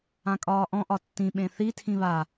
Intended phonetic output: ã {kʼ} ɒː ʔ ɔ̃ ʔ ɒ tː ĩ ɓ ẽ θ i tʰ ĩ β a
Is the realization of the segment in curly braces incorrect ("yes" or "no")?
no